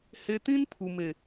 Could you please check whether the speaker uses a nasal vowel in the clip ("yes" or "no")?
yes